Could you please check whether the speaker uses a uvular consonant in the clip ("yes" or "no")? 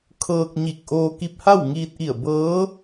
no